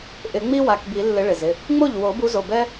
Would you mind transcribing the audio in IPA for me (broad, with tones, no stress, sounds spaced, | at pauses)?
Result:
ʔ ɪ˨˩˦ ŋ͡m i˥ w a˩˧˩ k b i˨˩˦ lː ɪ˨˦ ɭ ɪ˩ z ɪ˩˧˩ | ŋ͡m o˥˩ ʎ w o˨˩˦ b u˨˦ z o˩˧˩ b ɛ˥